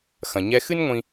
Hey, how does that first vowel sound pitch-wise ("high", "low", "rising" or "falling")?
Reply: low